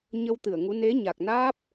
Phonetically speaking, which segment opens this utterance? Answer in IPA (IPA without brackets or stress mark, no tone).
ɲ